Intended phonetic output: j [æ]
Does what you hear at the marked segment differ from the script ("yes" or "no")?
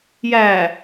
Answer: no